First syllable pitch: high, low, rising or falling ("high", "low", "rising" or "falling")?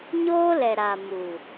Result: high